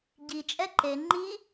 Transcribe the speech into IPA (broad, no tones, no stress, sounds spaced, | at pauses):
ɟ i t͡ʃʼ ɛ ǃ e ŋ͡ǃ i